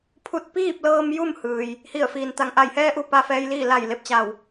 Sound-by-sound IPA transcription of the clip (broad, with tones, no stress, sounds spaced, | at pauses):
pʰ u˧˥ t̚ p iː˥˨ p̚ l ɤː˧ m j u˥˨ m h ɯː˩ j | h i˧˩ ə̯ f iː˩ n t̪ a˩ ŋ ʔ a˧˩ j h ɛː˧ ʔ u˧ p a˧ f ɛː˧˥ j l iː˥˨ l a˧˩ j l e˧˩ p̚ t͡ɕ a˧˩ w